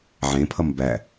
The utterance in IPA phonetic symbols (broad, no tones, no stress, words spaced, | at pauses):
ʕẽpʰʌm bæ